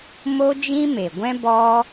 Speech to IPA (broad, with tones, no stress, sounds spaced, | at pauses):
m o˦ d͡ʒ ĩ˦ m e˨ ɡʷ ɛ̃˦ b ɔ˦